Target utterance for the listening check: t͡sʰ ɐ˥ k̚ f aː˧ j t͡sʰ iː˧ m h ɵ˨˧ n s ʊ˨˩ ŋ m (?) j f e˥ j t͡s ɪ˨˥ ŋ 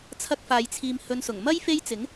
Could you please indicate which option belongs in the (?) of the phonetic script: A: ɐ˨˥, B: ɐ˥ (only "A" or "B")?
B